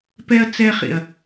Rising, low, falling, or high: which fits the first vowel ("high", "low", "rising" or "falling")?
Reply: high